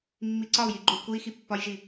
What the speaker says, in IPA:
mː i ǀ ɒ u̯ j i ɡ͡ǃ u l k u i̯ x i pː ɒ j ʒ i

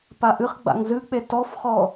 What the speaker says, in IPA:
p a ʔ ɨ χ ɡ͡b a̰ ŋ z ɨ k͡p e t ɔ f χ ɔ

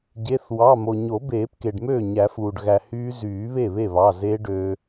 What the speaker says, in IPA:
ɟ e˩˧˩ θ w ɑ˩˧˩ m o˩ ɲ o˨˩˦ b eː˨˩˦ p k e˩ ɖ m øː˥˩ ɲ æ˨˩˦ f uː˩ ɖ ɣ æ˩ h yː˦˥ z yː˨˩˦ β e˥˩ β e˥˩ β ɑ˩˧˩ z e˦˥ ɖ ø˧

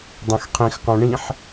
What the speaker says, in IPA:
dˤ õ x qʰ ĩ x q ɔ̃ ɳ ĩ ħ

